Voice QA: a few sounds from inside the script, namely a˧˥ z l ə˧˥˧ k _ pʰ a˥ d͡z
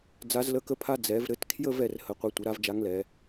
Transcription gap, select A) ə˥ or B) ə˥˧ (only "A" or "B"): A